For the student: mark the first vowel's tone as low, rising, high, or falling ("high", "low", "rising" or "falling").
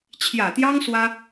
low